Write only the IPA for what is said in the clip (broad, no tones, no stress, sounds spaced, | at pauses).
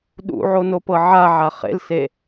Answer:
ɗ ṵ ʕ o n o p ɤ ʕ a ʕ a χ ḛ l s e